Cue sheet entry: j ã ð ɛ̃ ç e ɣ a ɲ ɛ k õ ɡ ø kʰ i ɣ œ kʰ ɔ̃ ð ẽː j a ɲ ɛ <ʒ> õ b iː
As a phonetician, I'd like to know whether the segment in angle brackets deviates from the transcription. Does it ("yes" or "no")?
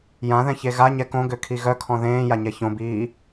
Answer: yes